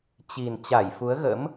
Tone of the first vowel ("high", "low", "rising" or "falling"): low